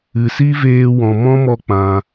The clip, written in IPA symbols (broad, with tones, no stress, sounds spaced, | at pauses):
ɨ˨ s i˦ v eː˧ w ɔ̃˨ m ɔ̃˦ m ɔ˧ k͡p ã˧